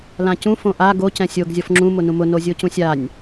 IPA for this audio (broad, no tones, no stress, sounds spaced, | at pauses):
l ã c ũ f õ ʔ a ɡ o c ɛ̃ sʲ o ɡ zʲ ɔ f ŋ͡ǁ ũ m ʊ n ũ m ʊ n o zʲ o c ũ sʲ a nʲ